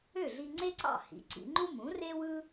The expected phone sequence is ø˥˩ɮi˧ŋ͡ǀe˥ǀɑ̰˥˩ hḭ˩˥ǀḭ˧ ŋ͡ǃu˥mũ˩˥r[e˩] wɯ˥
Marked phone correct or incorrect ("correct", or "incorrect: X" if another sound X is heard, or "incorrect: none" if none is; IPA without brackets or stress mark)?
incorrect: e˥